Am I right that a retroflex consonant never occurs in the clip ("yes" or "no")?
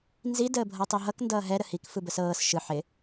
yes